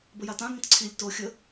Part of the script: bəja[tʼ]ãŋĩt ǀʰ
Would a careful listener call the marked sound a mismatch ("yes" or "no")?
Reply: yes